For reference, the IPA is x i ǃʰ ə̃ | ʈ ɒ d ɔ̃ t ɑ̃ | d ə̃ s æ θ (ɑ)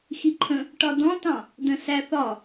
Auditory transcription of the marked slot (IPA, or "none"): ɒ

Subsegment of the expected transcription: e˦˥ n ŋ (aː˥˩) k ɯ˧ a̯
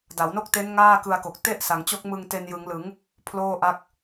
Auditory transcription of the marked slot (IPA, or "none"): aː˥˩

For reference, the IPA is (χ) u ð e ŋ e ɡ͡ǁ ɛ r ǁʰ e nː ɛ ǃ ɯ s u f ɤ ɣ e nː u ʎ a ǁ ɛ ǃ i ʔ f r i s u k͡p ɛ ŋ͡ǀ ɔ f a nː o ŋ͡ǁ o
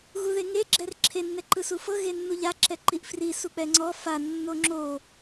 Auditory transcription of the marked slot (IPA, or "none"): ɣ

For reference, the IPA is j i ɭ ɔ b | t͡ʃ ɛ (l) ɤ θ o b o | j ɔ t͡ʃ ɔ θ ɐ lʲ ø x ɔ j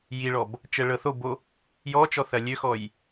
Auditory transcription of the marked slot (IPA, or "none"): ɭ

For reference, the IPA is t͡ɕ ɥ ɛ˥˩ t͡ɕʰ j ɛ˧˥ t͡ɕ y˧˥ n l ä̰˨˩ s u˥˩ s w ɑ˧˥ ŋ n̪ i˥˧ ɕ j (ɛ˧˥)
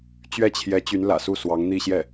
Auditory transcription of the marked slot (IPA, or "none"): ɛ˥˩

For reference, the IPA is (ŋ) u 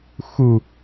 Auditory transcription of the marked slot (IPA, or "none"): x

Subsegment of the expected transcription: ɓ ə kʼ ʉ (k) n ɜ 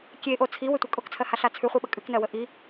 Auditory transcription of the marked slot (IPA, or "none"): k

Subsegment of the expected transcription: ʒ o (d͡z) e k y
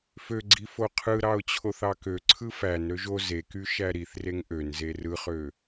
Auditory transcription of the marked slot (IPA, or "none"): z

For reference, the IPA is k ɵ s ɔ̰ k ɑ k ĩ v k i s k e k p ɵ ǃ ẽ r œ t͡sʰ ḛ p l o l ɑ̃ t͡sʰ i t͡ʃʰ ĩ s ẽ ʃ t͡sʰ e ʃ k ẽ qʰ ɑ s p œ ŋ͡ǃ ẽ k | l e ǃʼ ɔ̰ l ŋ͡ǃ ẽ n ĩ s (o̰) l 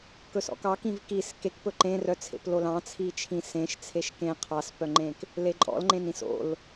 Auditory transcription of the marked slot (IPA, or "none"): o̰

